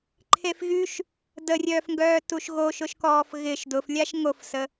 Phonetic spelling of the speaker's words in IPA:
ǃʰefɣyʃ | dərʲœːfŋɡœː tuʃɣoʃʊʃkɔːf ɣɪʃ dʊflʲaʃ ŋofsə

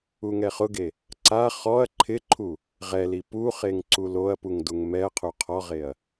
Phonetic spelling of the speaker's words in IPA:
uŋɛχʊɡe | ǀa χɔɐ̯ ǃʰɪǃʰu | ʁɛli puχeŋ ǀuloɐ̯puŋ duŋmɛɐ̯qʰu qʰɔʁeɐ̯

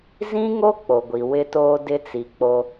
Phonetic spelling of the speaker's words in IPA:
zĩ˦ŋo˦ k͡po˨ɡʷi˨ wɪ˦toː˦ dɪ˦t͡si˨k͡po˦

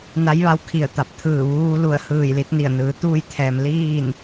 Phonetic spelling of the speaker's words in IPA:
na˧˥jʋa˧w kʰi˧˩ə̯t̪a˧˩p̚t̪ʰɯː˧˩ ʋuː˧lu˧˩ə̯ hɯː˧˩jli˧t̚ni˧˩ə̯nɯː˩˧ t̪uː˧jt̪ʰɛː˩m liː˥˨n

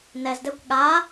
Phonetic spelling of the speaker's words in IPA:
nɛzdɛkʷ ɠa

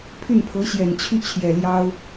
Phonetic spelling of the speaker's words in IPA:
pʰy˥˩npʰɤ˧˥ɕjɛ˨˩nt͡ɕʰy˥˩ t͡ɕʰjɛ˨˩ljɑ˥ʊ̯

